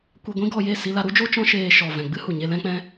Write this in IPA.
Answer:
kʷ ɛ˧ ɡʷ ĩ˦ ɡ ɔ˧ j e˦˨ s i˧ l a˧ ɾ u˦ d͡ʒ o˦ t͡ʃ ɔ̃˦ ʃ eː˧ ʃ ɔ˨ v ɛ̃˨ ɡ͡b ɨ˦ h u˨ ɲ e˧ l ɛ̃˧ k͡p ɛ̃˧

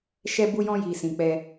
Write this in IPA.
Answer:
ʃ ɛ˧ b u˧ j ɔ̃˧ j i˨ s ĩ˨ k͡p ɛ˧

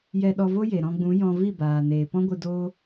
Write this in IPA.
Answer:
j ɛ˧ ɗ ɔ˧ v o˦ j e˨ ɾ ɔ̃˧ ɡ͡b ũ˨˦ j ɔ̃˧ v i˦˨ b aː˨ n eː˨ p ɔ̃˦ ɡʷ ɨ˧ d oː˦

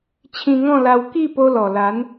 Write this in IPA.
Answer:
t͡ɕʰ ĩ˧ ŋ ɔ̃˥˧ l a˧ w k i˥˧ p o˧ l ɔ˨˩ l a˨˦ n

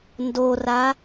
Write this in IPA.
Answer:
n d o r a

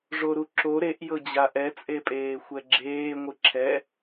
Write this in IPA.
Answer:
ʐ o ɾ u ǁ o ɾ e ʔ j ɤ d͡ʑ a ʔ ɛ t͡sʼ e pʼ eː xʷ ɛ ɡ͡ǁ eː ŋʷ ɯ ǁʰ ɛ

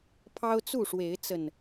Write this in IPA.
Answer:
pʰ ɑ˦ ʊ̯ t͡s u˥˨ ʂ w e˨˦ ɪ̯ t͡s ə˨˩ n

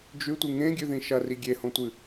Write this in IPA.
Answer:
d͡ʒ ʉ tʷ ɨ ŋ ẽ ɡʲ ʉ ð ĩ ʃ ɐ r i ɡʲ e h õ tʷ ɨ

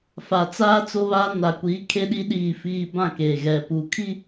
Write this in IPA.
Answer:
f a˨ t͡s aː˦ t͡s o˦ β aː˦ n a˨ kʷ iː˨˦ kʰ e˦ ɗ i˦ ɗ iː˦˨ f iː˦ b ã˦˨ k eː˨ ɣ ɛ˨ p u˨˦ kʰ i˦

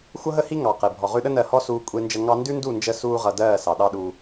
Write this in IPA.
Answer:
xʷ ʌ˦ ɦ ə˦ h i˦ ŋ ɑ˨ q e˨ bʱ ɔ˨ ʁ ʉ˧ ɗ ə˦ n ɜ˧ h ɔ˦ s uː˧ kʷʼ e˦ n d͡ʒ ə˦ ŋ ɑ˦ n d ʉ˦ n d u˦˨ n d͡ʒ ə˧ s uː˦ ʁ ʌ˧ d ɜː˦˨ s ɑ˨ ɗ ɑ˦ ɗ u˧

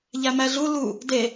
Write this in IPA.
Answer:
ʎ æ m æ ɮ u l u | d e

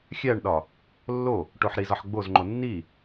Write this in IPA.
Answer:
xʲ æ ɳ ɗ ɒ | lː o | ʈ o ħ ɾ i z ɒ ħ ɡ͡b o z ŋ͡ǃ o nː i

